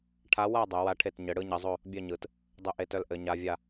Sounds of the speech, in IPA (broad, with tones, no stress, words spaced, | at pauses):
ʈʰa˧˥wa˥˧ dˤœ˨˩˦wa˧˥ʈʰe˥˩t ɲɘ˨˩˦ɽɯ˧˥ɲɘ˨˩˦zˤo˥˧ | bʲœ˥˧ɲɯ˨˩˦t | dˤɵ˥˧ʔe˧˥tœ˧˥l ʔɘ˨˩˦ɲa˧˥vʲa˥˧